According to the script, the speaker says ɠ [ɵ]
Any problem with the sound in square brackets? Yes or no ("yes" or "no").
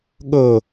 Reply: no